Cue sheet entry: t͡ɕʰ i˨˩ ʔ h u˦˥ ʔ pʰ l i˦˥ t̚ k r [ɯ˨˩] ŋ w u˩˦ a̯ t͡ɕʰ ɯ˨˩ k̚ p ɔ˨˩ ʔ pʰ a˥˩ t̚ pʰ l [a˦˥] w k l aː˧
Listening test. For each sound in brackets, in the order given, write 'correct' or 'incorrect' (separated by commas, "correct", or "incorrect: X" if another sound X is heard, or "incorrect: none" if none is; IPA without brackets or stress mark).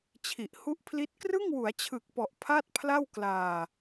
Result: incorrect: ɯ˥˩, incorrect: a˥˩